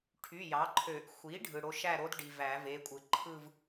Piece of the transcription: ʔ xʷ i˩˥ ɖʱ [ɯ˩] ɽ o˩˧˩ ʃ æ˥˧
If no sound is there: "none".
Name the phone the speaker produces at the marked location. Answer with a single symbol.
ɯ˩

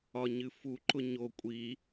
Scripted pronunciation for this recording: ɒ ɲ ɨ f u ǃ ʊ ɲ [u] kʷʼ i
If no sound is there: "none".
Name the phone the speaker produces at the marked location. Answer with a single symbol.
o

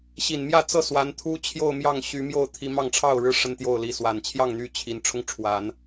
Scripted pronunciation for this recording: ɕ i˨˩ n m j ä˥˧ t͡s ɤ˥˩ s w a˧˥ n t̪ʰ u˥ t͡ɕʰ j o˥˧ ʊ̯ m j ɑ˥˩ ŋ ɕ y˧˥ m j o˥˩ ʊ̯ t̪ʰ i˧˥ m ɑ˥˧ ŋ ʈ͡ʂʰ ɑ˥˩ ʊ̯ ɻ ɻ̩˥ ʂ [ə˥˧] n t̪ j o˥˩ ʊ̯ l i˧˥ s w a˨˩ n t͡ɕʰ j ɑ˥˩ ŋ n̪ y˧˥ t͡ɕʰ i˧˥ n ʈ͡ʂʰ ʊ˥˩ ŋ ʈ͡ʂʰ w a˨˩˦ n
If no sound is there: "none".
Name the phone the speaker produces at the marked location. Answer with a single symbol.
ə˥˧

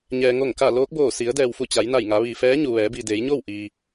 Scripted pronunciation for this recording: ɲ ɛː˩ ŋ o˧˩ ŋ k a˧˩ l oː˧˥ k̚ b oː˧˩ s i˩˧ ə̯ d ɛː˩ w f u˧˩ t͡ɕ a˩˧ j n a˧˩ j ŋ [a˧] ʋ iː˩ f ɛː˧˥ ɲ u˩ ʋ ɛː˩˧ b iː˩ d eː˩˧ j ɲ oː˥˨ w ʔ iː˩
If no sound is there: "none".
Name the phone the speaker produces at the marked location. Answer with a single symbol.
a˩˧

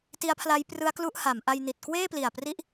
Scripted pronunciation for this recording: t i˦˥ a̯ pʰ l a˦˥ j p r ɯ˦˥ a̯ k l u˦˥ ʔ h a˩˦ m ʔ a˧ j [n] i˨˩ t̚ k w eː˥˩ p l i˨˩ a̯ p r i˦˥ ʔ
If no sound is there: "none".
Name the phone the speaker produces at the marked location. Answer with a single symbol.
n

